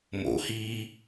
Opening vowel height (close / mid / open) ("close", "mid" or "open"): mid